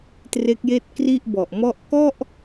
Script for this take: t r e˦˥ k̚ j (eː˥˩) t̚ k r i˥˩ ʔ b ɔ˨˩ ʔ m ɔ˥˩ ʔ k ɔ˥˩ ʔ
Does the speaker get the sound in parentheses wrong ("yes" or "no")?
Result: no